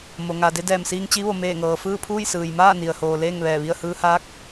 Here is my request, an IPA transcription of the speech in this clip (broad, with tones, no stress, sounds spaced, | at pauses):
m o˩ ŋ a˩ d e˧ d ɛː˧˩ m s iː˧ ŋ t͡ɕ i˧˥ ʋ o˩˧ m eː˧˩ ŋ ɤː˩ f ɯː˥˨ pʰ uː˥˨ j s ɯː˩ j m aː˥˨ n i˩ ə̯ h oː˩ l eː˥˨ ŋ ʋ ɛː˧˩ ʋ i˥˨ ə̯ h ɯː˧ h aː˧˥ k̚